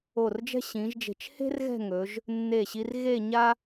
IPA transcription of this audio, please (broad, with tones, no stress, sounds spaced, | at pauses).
o˧˩ r d͡ʒ ɛ̤˥ ɕ ĩ˩˧ ʒ d͡ʒ e̤˧˩ t͡ʃ h e̤˥ r ɣ ɛ̤˥˧ ŋ ɵ˩˧ ʒ | nː e˧˩ ɕ i˧ r ɣ e˥˧ ɲ a˥